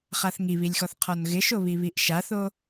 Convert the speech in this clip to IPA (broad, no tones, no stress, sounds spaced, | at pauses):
χ a θ ŋ i β i lʲ x ɔ θ qʰ ɔ n ɣ ɪ ʃ o β i β i ʔ ʃ a θ o